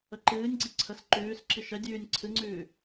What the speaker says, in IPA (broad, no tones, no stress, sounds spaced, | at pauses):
ə ǃ ɨː nʲ ɡ͡ǀ i ǀʰ ə s ǃ ʉː s ǁ i ʃ ɛ dʲ ʉː nʲ ǀʰ ɨ ŋ͡ǀ ʉː